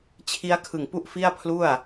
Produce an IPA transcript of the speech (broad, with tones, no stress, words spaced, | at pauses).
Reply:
t͡ɕʰi˦˥a̯kʰɯ˨˩ŋpu˥˩ʔ fi˥˩a̯pʰlu˥˩a̯